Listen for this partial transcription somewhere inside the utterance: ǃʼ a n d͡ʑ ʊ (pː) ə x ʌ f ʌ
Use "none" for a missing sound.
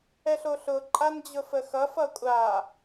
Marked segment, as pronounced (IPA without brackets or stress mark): f